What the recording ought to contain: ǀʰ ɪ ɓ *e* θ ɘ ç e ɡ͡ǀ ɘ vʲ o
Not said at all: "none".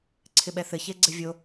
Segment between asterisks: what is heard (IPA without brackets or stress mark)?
ɛ